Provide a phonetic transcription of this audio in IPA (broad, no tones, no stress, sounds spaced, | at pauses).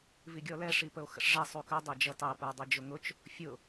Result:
v i ɡʲ ɔ l ɛ ʂ i p ə o̯ x ə̰ ʂ ʐ ɛ sˤ u k ə dˤ ɛ d͡ʒ ʌ t ɑ p ə˞ dˤ i d͡ʒ ʊ ŋ ʊ t͡ʃ | fʲ ʊ